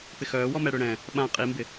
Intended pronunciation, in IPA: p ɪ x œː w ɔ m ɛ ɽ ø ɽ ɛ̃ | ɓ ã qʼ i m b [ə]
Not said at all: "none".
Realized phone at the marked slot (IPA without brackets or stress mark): ɪ